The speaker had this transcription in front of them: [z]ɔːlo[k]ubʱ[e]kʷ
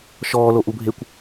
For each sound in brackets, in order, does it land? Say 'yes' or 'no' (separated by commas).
no, no, yes